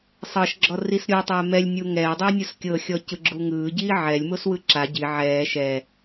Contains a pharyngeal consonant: yes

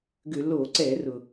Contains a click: yes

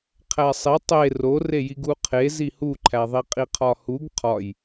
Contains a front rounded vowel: no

